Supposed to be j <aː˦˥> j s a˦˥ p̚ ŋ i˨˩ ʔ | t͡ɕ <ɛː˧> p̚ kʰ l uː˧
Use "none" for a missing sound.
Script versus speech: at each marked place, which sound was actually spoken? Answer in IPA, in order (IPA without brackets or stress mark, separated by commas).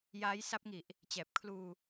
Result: aː˦˥, ɛː˨˩